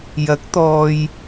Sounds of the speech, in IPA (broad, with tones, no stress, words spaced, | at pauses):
jɐ˨˥k̚t̪ɔː˨j